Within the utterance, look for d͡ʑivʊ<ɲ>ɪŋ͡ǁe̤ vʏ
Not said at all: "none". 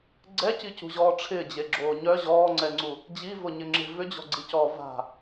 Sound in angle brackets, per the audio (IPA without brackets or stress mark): ɲ